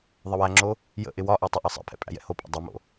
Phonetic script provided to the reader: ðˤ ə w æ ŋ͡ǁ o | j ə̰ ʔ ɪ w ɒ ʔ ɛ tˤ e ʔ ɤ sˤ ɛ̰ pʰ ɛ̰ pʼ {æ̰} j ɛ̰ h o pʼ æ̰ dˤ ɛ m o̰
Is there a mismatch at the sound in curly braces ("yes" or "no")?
no